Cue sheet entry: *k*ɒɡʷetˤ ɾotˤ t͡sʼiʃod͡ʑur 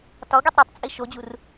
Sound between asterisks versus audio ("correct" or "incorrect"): incorrect